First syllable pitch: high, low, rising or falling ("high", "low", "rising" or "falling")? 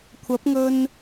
rising